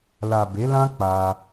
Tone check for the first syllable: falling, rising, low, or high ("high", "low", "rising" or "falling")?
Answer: low